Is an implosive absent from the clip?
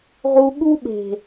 no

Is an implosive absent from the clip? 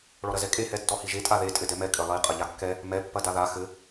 yes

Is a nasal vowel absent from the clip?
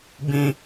no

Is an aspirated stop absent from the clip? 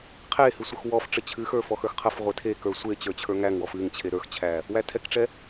no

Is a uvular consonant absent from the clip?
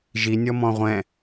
no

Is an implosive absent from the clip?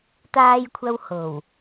yes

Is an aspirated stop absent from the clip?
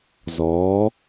yes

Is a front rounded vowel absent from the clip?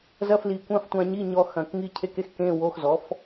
yes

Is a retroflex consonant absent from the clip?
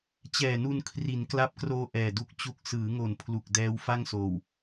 yes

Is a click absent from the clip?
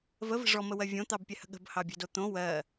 yes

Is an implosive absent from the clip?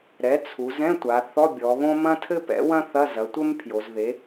yes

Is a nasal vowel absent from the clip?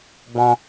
no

